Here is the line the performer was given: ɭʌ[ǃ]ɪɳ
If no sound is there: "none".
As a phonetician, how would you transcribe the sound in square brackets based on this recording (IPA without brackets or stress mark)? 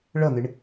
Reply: n̪